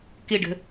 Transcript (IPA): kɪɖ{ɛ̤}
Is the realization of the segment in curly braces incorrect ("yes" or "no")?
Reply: yes